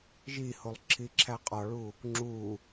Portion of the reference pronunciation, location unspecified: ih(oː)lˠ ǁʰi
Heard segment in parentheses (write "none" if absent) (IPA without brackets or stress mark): o